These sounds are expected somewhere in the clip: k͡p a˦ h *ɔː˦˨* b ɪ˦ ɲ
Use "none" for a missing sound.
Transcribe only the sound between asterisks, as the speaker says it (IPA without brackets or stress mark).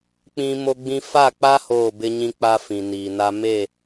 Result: oː˦˨